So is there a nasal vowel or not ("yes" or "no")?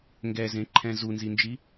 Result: yes